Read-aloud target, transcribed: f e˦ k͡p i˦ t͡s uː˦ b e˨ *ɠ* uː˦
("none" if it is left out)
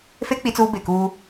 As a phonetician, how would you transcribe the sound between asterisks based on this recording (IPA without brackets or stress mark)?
k